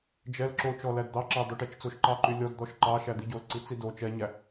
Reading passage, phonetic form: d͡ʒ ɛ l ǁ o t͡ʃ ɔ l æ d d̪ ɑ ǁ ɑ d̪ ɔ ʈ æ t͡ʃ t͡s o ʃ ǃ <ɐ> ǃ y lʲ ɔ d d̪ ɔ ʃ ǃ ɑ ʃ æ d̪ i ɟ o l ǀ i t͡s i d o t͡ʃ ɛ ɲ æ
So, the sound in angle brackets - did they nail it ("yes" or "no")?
no